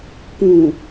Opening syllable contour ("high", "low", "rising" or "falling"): low